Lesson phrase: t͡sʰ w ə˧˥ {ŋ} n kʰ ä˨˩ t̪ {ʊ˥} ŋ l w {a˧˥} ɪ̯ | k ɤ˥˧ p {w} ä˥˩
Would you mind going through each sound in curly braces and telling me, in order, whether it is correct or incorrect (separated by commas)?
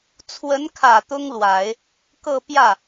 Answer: incorrect, correct, incorrect, incorrect